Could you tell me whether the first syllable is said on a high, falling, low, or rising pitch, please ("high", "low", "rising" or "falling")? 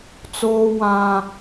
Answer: high